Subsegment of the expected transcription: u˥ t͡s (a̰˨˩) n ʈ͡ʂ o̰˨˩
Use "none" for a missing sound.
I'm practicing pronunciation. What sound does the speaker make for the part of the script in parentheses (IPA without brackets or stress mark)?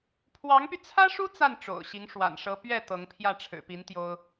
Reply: a˥˩